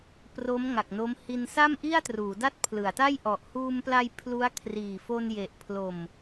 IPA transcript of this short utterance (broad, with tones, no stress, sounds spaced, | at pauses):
p r o˦˥ m ŋ a˨˩ k̚ n o˦˥ m h i˧ n s a˥˩ m ʔ i˥˩ a̯ t r uː˩˦ d a˥˩ t̚ pʰ l ɯ˩˦ a̯ t a˥˩ j ʔ ɔ˨˩ ʔ h uː˧ m p l a˧ j pʰ l u˦˥ a̯ kʰ r iː˨˩ f o˧ n j e˨˩ ʔ pʰ l o˨˩ m